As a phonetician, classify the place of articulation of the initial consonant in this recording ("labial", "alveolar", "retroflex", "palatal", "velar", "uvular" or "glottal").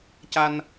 palatal